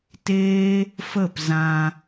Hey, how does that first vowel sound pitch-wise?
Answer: high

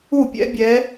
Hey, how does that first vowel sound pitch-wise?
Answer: falling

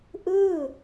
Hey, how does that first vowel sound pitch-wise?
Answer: falling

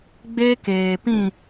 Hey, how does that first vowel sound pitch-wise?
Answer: high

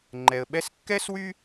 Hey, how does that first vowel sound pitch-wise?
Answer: low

